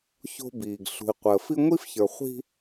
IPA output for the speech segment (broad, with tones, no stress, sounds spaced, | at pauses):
ç o̤˦ b iː˨ ɡ ɬ ṳ˨ i̯ qʷ əː˨ f i˦ ŋʷ i˦ f ç ə˞˨ χʷ i̤˦